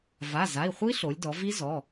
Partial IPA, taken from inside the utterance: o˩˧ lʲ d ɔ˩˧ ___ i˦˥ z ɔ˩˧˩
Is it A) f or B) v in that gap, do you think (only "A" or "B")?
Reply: B